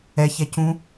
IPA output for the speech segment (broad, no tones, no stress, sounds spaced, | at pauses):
ɛ ç ɛ c ũ